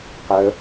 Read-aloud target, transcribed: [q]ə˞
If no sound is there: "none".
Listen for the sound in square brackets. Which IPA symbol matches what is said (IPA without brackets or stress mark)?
q